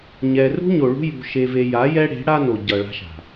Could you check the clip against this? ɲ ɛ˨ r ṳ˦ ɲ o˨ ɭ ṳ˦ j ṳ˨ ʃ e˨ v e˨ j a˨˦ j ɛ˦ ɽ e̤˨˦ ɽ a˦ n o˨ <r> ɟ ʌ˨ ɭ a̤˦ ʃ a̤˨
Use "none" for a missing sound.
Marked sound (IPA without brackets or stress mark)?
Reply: none